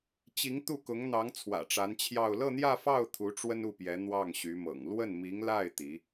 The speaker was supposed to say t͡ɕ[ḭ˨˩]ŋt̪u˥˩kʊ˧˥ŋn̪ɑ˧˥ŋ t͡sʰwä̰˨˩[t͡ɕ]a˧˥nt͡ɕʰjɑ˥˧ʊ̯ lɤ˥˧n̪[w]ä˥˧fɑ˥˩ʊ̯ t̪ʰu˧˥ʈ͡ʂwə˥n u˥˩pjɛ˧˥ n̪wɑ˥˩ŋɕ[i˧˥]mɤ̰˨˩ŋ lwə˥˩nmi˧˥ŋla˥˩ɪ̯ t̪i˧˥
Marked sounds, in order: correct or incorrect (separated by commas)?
incorrect, incorrect, incorrect, incorrect